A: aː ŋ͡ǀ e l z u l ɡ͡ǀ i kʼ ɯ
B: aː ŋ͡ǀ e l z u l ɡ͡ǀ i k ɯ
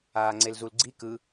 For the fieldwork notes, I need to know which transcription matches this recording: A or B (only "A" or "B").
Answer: B